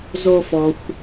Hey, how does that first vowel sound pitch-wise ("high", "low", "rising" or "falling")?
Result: high